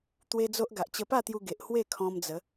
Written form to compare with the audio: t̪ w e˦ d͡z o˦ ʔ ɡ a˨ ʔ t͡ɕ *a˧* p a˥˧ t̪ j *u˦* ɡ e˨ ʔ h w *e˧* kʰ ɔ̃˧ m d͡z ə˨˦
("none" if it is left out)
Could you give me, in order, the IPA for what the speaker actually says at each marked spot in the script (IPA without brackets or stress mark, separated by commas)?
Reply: ə˧, u˧, e˥˧